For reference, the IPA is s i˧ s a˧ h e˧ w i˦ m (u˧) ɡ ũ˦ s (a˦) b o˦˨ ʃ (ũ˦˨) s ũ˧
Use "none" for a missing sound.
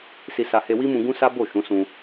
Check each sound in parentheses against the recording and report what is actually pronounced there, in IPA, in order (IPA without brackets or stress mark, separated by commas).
ũ˧, a˦, ũ˨˦